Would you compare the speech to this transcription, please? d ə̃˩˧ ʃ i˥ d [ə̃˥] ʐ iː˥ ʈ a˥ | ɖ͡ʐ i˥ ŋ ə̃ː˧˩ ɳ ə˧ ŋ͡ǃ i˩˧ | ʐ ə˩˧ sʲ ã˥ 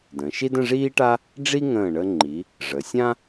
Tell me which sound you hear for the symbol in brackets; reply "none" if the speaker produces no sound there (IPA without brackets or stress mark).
ə̃˥˧